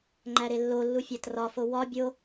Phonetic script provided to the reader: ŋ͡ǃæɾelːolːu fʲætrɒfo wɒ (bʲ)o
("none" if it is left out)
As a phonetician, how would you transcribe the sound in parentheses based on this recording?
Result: bʲ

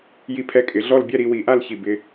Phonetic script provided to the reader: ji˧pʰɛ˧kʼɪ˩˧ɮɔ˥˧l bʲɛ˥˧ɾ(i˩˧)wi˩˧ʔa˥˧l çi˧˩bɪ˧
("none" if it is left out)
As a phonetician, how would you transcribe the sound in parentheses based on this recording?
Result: i˩˧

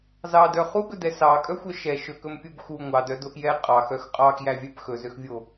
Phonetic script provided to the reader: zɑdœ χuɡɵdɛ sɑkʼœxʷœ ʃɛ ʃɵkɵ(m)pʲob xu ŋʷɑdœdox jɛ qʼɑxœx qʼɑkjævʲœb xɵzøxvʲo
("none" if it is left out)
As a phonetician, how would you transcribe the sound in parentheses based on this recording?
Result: m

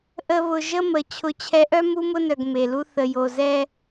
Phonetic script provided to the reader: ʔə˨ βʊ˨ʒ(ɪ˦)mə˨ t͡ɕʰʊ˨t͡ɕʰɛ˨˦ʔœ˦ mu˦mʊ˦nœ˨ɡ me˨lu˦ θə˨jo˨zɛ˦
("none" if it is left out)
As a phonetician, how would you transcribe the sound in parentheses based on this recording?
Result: ə˦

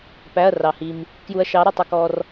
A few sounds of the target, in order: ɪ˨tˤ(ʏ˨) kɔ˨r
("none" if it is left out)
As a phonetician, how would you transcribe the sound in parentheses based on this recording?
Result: ə˨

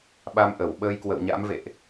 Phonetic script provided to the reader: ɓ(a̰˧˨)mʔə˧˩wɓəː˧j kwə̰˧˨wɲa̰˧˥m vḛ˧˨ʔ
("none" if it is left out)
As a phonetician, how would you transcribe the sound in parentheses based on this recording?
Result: a˧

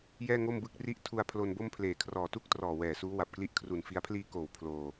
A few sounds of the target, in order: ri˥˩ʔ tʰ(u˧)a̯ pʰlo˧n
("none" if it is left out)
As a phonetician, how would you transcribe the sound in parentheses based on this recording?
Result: u˧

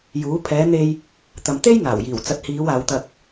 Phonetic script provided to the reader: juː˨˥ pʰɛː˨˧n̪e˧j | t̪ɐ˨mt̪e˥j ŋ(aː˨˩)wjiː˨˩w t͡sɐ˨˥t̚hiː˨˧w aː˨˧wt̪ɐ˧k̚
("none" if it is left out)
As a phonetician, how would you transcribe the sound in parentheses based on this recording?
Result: aː˨˩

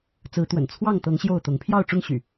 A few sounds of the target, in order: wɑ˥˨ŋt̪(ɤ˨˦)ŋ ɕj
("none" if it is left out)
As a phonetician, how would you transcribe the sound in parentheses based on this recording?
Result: ɤ˨˦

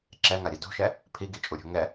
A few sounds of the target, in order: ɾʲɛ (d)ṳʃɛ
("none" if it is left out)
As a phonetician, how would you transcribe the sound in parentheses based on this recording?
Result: d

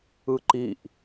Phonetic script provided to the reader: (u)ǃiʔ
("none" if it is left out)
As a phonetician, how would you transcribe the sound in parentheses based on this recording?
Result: ɯ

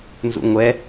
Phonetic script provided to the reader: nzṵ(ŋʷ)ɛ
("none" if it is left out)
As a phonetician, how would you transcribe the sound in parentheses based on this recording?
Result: ŋʷ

